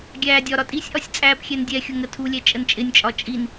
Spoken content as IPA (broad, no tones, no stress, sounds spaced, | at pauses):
ɡʲ æː dʲ ɒ ɾ ɒ tʼ i sʲ ʔ ɒ sʲ t͡sʼ æː p xʲ ɛ n dʲ ɛ xʲ ʊ ŋ ə tʰ u lʲ ɛ t͡ʃʼ ə n t͡ʃʼ ɪ nʲ t͡ʃʼ ɒ t͡ʃʼ i n